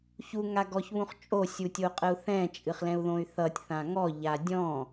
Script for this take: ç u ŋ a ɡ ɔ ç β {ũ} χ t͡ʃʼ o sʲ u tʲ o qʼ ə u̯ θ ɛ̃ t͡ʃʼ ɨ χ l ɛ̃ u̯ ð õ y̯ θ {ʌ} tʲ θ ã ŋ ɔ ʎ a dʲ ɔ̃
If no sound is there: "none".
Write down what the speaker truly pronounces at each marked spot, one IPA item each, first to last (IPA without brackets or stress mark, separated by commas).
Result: ũ, ʌ